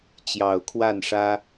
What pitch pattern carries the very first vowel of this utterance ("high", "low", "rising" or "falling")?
low